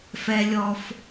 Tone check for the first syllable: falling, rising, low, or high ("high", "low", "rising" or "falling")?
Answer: high